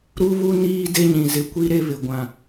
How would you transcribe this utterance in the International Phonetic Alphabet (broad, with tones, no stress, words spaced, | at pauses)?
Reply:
ɾu˦βu˦ niː˦ de˦ɲĩ˨zɪ˨kʷi˦ ɾe˦βɪ˨ ɡʷã˨